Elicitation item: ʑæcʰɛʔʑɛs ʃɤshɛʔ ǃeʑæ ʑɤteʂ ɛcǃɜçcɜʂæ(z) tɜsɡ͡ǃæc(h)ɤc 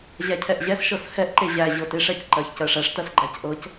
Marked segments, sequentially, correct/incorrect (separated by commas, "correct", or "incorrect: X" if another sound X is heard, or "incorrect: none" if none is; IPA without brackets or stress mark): incorrect: ʂ, incorrect: ʔ